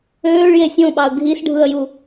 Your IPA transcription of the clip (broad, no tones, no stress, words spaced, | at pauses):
øːɭje sʲõɓɑə̯ ɡʱisɖʱɯə̯ju